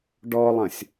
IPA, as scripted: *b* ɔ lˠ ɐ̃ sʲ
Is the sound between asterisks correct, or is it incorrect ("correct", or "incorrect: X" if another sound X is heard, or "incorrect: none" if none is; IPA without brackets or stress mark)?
incorrect: ɖ